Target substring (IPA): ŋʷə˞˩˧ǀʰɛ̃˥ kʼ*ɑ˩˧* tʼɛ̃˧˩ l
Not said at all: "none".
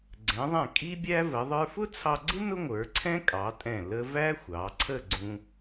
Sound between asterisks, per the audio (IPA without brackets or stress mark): ɑ˩˧